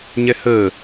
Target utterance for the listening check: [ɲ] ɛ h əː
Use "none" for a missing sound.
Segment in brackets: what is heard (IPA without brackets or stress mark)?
ɲ